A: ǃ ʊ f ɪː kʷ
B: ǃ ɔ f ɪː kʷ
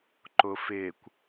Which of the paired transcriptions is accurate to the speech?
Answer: A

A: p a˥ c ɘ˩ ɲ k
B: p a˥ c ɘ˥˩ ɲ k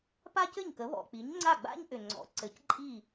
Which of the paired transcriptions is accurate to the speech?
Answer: B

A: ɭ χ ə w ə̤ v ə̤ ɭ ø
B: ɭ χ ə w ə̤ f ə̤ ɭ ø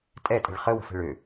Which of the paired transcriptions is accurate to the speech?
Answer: B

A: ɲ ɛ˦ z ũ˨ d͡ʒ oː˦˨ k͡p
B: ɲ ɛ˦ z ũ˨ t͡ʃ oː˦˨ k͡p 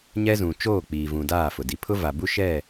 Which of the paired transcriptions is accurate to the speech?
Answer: B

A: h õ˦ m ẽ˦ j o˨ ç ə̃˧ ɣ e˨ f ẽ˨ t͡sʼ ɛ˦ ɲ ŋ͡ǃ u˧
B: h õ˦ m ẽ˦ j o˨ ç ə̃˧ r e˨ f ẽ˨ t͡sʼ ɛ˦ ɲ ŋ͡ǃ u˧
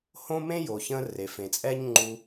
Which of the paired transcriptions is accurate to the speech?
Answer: B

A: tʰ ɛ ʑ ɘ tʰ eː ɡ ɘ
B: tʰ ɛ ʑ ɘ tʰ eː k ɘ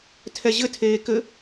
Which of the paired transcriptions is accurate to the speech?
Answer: B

